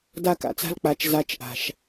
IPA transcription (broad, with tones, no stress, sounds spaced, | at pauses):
d a˦ k a̰˨ t͡s a̤˦ l k͡p a˨˦ t͡ʃ z a˧ t͡ʃ ʔ a̤˨ ʃ